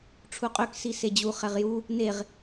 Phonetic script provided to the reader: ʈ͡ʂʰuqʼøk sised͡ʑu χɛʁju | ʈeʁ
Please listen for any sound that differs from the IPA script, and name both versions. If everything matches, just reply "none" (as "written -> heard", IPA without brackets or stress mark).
ʈ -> n